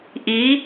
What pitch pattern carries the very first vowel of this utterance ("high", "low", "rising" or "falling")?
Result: rising